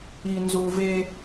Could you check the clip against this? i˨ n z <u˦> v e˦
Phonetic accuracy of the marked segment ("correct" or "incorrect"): incorrect